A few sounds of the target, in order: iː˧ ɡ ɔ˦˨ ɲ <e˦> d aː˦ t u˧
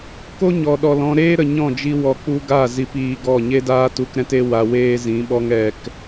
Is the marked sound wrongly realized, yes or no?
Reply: no